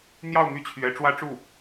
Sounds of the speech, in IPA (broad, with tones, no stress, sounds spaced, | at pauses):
n̪ j ɑ˥˧ ʊ̯ m y˥˩ t͡ɕʰ ɥ ɛ˧˥ ʈ͡ʂ w ä˥ ʈ͡ʂ u˥˩